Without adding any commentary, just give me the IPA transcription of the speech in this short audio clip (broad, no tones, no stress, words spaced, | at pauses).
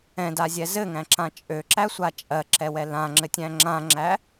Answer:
ɛ̃dazʲɛ zɘŋæ̃ǁã t͡ʃʼøǁæsʷa t͡ʃʼɜǁɛwɛ lãŋ͡ǁɘtʲæ̃ ŋ͡ǁãŋ͡ǁæ